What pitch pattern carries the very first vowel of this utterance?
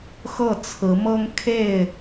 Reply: falling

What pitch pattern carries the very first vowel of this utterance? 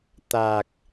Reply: low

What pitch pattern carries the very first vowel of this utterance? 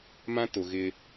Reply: high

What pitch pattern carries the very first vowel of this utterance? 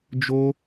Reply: high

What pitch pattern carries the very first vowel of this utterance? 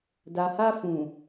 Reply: low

